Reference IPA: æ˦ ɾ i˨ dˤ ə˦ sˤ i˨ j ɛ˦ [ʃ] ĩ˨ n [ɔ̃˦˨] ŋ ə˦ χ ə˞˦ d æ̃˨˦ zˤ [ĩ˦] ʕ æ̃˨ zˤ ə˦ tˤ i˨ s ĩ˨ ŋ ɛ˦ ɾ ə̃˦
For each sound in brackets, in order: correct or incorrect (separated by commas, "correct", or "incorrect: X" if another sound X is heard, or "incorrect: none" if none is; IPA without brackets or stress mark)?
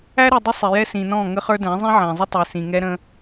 incorrect: s, correct, correct